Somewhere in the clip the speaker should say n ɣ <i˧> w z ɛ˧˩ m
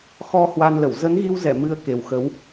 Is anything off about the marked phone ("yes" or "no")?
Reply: no